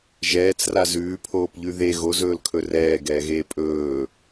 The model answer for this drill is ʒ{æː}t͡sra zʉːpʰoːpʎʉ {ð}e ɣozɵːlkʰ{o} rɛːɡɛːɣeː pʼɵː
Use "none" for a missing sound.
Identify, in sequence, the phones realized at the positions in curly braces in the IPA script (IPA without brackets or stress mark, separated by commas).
ɛː, ð, ɵ